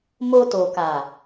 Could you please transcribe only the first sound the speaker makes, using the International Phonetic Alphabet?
m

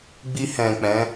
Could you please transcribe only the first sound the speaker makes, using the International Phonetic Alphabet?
ɡ͡b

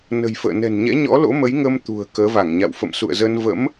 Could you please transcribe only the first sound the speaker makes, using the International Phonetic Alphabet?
n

